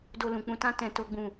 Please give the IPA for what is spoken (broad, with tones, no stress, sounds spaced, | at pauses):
d o˧ l ũ˨ k͡p ũ˧ t ã˦ t ɛ̃˦ t o˦ ɡ͡b ũ˦˨